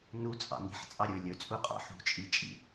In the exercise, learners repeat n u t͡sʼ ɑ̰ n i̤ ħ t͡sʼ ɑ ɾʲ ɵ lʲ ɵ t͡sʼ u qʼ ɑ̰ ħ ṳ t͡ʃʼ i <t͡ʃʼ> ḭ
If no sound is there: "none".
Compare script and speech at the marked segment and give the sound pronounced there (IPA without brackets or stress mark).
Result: t͡ʃʼ